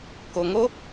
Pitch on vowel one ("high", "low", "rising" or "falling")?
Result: low